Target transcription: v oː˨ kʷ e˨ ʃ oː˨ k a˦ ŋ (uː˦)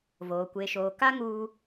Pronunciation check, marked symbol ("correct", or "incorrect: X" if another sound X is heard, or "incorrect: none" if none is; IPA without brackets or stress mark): correct